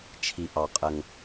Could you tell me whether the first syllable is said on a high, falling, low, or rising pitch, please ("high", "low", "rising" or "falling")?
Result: low